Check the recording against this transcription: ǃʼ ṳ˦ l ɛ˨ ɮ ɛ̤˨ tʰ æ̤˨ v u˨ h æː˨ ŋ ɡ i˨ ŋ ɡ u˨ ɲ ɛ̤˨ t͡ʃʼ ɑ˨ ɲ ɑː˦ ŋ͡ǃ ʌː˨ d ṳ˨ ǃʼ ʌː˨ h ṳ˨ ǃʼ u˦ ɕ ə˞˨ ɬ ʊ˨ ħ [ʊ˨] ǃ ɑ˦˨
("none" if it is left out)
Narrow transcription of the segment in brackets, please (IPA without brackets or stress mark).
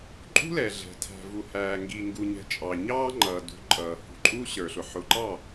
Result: ʊ˨